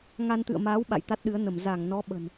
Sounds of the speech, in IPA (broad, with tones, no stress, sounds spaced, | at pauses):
ŋ a˧ n t̪ ɨ̰˧˨ ə̯ m aː˨˦ w ɓ a̰˧˨ j t̪ a˦˥ t̚ ɗ ɨ˨˦ ə̯ n ə˧˩ m z a˧˩ ŋ n ɔ˨˦ ɓ ə̤˨˩ n